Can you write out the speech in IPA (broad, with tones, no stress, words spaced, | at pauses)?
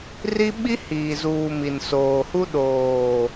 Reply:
ri˦ɓi˦ hiː˨zuː˨ mi˨nsoː˨hu˦ ɗoː˨